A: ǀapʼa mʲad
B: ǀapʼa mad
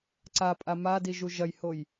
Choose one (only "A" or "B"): B